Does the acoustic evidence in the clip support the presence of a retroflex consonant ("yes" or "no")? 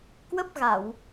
no